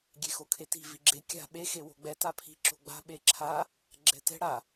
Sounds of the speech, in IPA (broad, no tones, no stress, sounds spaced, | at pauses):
ɡʲ e x o kʰ e t i̤ v i ɡ͡ǁ e kʲ a̤ ɓ e x e w o̤ ɡ͡b ɛ t a pʰ i̤ ǁ o̤ ɡ͡b a̤ ɓ e ǁʰ a | ɡ͡ǁ ɛ t ɛ̤ ɽ a